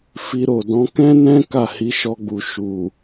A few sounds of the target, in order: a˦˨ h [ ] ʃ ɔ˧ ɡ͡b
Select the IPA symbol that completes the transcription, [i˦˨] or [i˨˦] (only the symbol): i˨˦